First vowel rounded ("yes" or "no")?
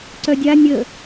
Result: yes